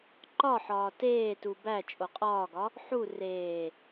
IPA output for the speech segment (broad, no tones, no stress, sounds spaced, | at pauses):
ǃ ɒ ħ ɒː t eː t u b æ t͡ʃʼ o qʼ ɒː ɡ ɒ | ħ u r eː